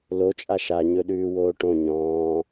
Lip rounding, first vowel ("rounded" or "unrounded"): rounded